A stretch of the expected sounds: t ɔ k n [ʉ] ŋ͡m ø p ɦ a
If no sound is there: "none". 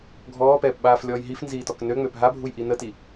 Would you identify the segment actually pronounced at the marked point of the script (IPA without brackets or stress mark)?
ø